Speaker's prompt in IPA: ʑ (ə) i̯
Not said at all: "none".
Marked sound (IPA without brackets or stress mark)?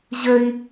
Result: ə